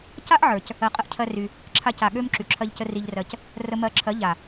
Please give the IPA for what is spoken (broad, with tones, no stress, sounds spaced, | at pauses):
c a˦ ʔ ʕ ə˞˨ c | ɜ˧ qʼ ə˦ ʔ cʰ ɜ˦ r y˧ | ǁʰ a˦ c a˧ ɠ ø˦ m ǁ y˨ ǁʰ ɜ˧ ʎ c ə˧ r i˧ ʎ r ɜ˧ c | r ə˧ m ɜ˧ ǁʰ ɜ˨˦ ʎ a˨